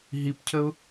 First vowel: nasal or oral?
oral